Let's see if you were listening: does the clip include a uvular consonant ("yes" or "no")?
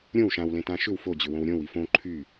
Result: no